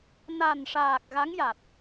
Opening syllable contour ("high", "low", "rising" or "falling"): low